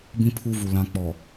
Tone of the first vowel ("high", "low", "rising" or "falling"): high